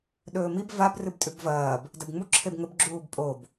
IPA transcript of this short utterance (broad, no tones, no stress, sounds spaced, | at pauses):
ɗ ɵː m i b v a b r ɨ b tʼ ʉ b v ɐː b | d ɐ b ŋ͡m u ǁʰ e b ŋ ɵ b ɡ͡ǁ uː b pʼ o b